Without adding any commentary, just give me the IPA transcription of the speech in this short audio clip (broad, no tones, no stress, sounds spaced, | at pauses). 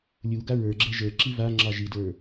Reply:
lʲ u ɡ a ɹ ə˞ ɡ͡ǁ ɛ ʒ ə˞ ǁ i v a ŋ͡ǁ ɑ ʒ i d ə˞